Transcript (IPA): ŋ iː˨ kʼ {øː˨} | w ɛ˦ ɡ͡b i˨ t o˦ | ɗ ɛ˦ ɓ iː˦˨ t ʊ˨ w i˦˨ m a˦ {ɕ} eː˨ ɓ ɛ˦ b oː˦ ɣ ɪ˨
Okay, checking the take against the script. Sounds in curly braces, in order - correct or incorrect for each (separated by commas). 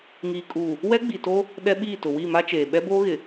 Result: incorrect, incorrect